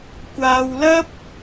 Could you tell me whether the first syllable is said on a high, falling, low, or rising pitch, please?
low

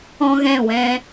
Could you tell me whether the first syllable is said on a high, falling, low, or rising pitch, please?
high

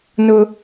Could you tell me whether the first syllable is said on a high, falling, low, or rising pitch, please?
high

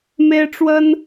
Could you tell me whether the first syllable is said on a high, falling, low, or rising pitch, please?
high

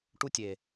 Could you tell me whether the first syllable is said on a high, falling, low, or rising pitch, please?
high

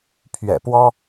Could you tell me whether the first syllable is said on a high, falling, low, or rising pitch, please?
low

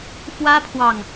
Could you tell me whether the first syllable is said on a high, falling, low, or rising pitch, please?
high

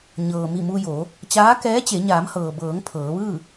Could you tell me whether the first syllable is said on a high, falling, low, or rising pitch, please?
low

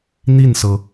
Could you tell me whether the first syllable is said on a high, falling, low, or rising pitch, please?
falling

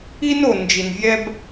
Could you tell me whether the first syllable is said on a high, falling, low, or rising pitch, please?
high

